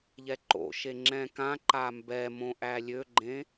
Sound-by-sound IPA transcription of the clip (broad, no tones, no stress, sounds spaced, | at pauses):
ʎ ɛ ǃ o̰ ʃ e ŋ͡ǁ ɛ̃ k ã ǃ a m b ɛ m õ ʔ æ lʲ ø ɡ͡ǃ ẽ